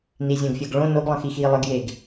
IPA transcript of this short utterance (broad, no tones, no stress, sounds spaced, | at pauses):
n i zʲ õ ɡ fʲ ə ɡ ɭ õ n o ɡ lˠ ə̃ x i x i lˠ ə ɡ j e ɡ